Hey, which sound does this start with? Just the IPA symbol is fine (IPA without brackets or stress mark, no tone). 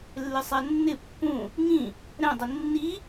lː